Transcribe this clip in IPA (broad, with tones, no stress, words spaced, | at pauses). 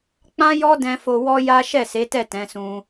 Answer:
k͡pã˦jɔ˦dɛ̃˧ fo˧wɔ˦ja˦ ʃɛ˦˨se˨˦tɛ˦˨ tɛ̃˨˦sũ˧